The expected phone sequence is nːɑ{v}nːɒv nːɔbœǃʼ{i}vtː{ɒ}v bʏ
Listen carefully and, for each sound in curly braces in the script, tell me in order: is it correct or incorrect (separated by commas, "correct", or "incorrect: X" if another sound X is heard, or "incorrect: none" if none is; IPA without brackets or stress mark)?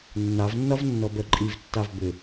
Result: correct, correct, incorrect: ɑ